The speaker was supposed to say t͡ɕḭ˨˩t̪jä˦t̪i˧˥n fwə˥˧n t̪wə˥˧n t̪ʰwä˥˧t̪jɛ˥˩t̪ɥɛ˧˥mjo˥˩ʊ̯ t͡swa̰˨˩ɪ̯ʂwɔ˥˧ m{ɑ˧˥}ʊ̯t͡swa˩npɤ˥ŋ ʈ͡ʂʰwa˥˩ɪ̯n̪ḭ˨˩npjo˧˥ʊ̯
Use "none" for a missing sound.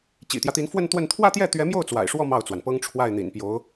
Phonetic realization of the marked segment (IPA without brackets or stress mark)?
ɑ˥˩